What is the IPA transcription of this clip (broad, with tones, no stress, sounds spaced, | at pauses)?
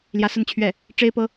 l j ä˧˥ s ə˥˧ n t͡ɕʰ ɥ ɛ˥˩ | ʈ͡ʂ e˥ ɪ̯ p ɤ˥